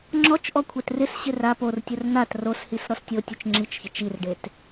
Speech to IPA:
ŋ͡ǁɔt͡ʃʔɔ kʷʰɛtrɪsɕɪ ra portʲʊr n̪at roshis ɾɔstʲotʲʊt͡ʃ ŋ͡ǁit͡ʃçɪ t͡ʃirɖet

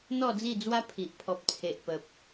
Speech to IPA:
n̪ɔ˥˧d͡zi˥˧d͡zwa˦pʰi˨ʔ pʰɔ˨p̚t͡sʰe˨ʔ pə˨p̚

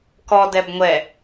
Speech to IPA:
kɔdɛb ŋʷɛ

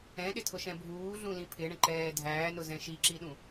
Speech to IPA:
ɛ̃ɗɪtʰʊʃɛ̃ bʱuːɮũlĩ pʰɪɳə̃ǃɛː dʱæːnʊzɛ̃ ʃiǁiɗũ

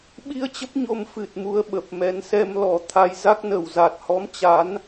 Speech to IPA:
ɓi˧ə̯ t͡ɕə˦˥p̚ɲo˧m fɨ˨˩t̚mu˧ə̯ ɓə˨˩p̚mɛ˨˦n sɛ˧mlɔ˨˩ t̪ʰa˧jza˦˥k̚nə˨˩w za˨˩t̚hɔ˨˦m t͡ɕa˨˦n

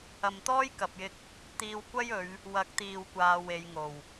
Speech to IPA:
ɐ˨mt̪ɔː˥jkɐ˨p̚jɪ˧k̚ | t̪iː˧wkʷɐ˥jɵ˨˧ɥ | wɐ˨˥k̚t̪iː˨w kʷaː˧we˨˧jŋo˨˩w

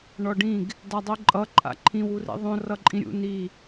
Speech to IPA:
ɳɔɖĩɡ | dadˤiǃʼʌ ǃʼa̰ǃʰĩw urḭðˤõ rʌǃʼĩɾʲṵ ni

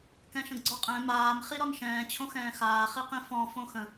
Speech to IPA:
kɛ̃ʃə̃ɡɡ͡ǀɔqʼɛ̃ maːm χiɾɔnʃɛ̃ː t͡ɕʰõxɛ̃ːxaː χiqĩfɔ̃ fõxə̃

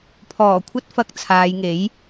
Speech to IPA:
pʰɔː˨˩kʷʰɐ˥t̚fɐ˧k̚ t͡sʰaː˨˧jŋe˨˥j

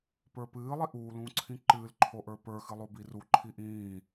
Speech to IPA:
pə˞pɨː lˠiʔuː lũːǀʰĩǃɨːl ǃʰoʔə˞pə˞ xɨlˠobiru ǃʰiʔĩː

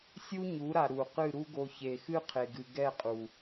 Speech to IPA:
sʲu˦ɲu˨˦ɾa˨ ɾu˨qɨ˦˨ ɾu˦ɡo˧ çe˨xɨ˦ qʰe˨ɡɨ˨ ɡɛ˦˨qʼu˨

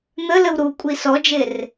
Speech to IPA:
n̪ələw ɾukʷʼi sɔd͡ʒer

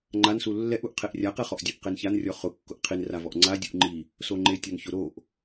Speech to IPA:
ŋ͡ǃansu lːɛʔuʔ qʰeʔrʲaqɛχɔʔ dʲɔʔqençanrʲɔ χʊkːʊʔ qʰinravɔʔ ŋ͡ǀa dʲuʔŋ͡ǃi | soŋ͡ǃe tʲɔnçʊ ɾoʔ

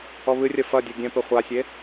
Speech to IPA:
ɔβɨrʲɐ fɐdʲo ɡʲɛ̃pɘ χʷasʲe

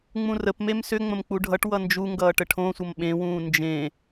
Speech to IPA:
ŋ͡mũrəpmem sʏ ŋ͡mə̃mk͡puɖʱʌʈwʌ nd͡ʒuŋɡʌːʈ əʈʰõsʷʌm ɓẽwũː nd͡ʒẽ

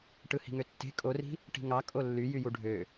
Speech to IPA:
ʈɯhi̤ŋøtːe̤ kʼori̤ | ʈi̤ŋɑ kʼolːy jyjuɖʱø

